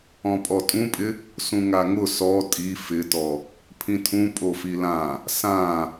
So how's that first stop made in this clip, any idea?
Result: ejective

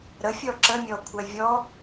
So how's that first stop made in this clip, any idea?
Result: click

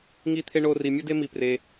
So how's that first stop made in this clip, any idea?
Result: aspirated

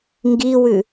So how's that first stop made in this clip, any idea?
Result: plain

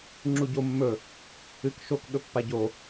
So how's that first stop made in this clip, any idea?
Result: click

